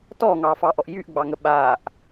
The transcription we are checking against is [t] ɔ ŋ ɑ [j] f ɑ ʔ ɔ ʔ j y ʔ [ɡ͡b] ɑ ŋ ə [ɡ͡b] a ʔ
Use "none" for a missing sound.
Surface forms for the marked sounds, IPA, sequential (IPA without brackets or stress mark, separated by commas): t, none, ɡ͡b, ɓ